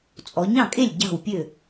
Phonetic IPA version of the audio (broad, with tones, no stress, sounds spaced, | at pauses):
t͡sʼ ɔ˩˧ ɲ ɑ̃˥˩ kʼ e˥˩ lʲ ɟ ɑ̤˥˩ w pʲ ø˥˩